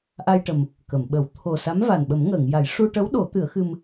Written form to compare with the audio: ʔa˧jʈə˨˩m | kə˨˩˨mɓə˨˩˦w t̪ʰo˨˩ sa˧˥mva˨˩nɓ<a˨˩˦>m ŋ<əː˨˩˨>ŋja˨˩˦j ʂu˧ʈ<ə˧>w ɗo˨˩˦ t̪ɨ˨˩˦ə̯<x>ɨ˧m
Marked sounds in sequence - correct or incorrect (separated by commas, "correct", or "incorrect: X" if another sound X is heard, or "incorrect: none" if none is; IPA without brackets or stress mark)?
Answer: incorrect: ə˨˩˦, correct, incorrect: ə˧˥, correct